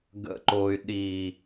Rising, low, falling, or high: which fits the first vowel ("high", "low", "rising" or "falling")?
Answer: low